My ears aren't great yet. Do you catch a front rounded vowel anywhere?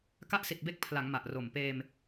no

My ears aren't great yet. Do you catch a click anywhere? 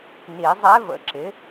yes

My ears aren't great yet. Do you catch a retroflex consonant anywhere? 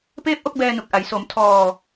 no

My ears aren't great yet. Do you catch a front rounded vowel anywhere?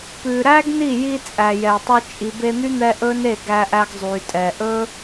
yes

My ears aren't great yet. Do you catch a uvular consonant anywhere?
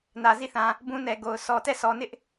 no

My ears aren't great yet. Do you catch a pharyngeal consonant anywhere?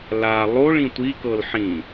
yes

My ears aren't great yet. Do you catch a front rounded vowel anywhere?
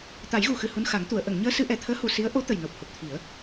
no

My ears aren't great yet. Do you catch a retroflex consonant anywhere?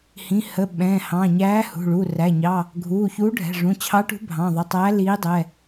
yes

